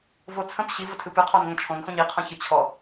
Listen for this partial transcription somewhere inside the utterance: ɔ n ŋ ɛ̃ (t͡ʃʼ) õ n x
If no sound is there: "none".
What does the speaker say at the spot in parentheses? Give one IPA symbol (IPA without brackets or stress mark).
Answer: t͡ʃʰ